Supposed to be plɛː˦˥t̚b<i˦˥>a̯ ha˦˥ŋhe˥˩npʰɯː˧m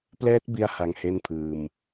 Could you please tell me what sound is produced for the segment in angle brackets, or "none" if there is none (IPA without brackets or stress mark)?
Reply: i˧